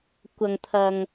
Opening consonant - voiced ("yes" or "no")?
no